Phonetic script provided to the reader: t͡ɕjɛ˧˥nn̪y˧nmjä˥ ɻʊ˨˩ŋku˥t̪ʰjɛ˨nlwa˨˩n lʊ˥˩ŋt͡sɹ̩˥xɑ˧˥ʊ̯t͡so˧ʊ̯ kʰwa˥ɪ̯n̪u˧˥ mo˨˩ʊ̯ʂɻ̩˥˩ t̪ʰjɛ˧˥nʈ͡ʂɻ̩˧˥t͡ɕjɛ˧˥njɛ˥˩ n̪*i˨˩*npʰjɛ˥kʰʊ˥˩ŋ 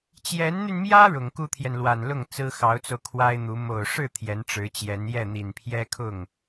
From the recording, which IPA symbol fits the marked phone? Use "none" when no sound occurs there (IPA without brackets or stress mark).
i˨˩